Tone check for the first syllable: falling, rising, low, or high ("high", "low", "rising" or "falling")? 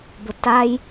low